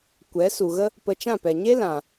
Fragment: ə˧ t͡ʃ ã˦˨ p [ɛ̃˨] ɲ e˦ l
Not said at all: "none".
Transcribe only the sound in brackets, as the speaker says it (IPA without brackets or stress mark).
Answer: ɛ˨